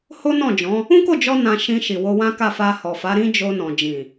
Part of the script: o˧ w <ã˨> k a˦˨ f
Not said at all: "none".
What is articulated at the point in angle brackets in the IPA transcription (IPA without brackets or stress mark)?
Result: ã˦